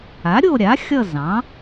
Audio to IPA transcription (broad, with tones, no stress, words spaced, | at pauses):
a˩˥ɾʲo˦˨ ɾʲa˩˥xʲʌ˦˨ zɑ̃˩˥